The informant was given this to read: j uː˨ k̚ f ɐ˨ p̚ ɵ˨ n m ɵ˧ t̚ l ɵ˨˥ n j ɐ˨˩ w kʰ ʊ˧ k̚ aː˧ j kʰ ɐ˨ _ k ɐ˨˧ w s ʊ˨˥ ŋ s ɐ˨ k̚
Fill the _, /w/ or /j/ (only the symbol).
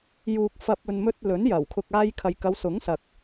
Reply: j